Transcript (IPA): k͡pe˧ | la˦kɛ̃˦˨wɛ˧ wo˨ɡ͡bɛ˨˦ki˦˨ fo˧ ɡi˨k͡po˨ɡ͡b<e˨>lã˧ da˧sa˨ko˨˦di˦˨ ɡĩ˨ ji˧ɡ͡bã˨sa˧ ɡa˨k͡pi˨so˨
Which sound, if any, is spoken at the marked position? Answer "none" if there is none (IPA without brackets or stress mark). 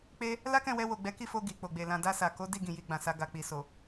e˨